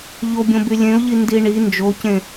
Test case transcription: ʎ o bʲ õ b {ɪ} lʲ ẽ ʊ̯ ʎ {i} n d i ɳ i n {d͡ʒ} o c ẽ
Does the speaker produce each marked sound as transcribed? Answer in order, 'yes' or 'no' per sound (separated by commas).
no, yes, yes